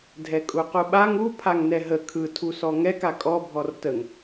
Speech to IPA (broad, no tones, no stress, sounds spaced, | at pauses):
dʱ ɛ kʼ u q u ɓ a ŋ u pʰ a ŋ n ɛ ɦ ə kʰ ɯ tʰ u s ɔ ŋ ɛ k a kʼ ɔ bʱ ɔ r t ə ŋ